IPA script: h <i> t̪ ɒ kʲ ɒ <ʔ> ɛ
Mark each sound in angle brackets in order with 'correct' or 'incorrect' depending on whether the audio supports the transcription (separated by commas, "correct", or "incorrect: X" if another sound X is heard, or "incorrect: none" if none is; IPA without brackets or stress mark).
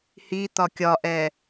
correct, correct